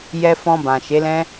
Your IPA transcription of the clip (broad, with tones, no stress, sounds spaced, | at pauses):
j ɛ˨ f ɔ̃˨ b ã˨ ʃ e˨˦ l ɛ̃˦